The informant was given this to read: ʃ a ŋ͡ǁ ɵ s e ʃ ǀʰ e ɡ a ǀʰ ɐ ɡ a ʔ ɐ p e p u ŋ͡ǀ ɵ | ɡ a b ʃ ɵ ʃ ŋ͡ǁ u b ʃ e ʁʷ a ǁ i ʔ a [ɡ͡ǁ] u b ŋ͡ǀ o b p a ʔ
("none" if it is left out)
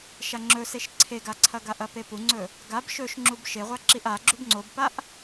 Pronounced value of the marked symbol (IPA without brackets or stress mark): ɡ͡ǁ